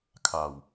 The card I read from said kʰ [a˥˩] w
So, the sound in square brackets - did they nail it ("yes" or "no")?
no